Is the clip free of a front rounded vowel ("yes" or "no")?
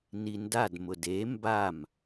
yes